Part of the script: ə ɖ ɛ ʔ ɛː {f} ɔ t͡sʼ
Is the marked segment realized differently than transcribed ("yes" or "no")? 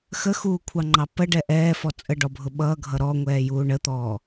no